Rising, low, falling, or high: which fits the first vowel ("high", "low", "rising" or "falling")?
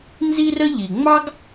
high